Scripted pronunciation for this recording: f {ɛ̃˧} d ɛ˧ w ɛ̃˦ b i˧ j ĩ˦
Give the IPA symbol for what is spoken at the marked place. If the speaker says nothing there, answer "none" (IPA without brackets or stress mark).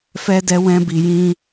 ɛ˧